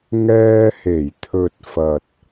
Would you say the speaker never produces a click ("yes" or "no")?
yes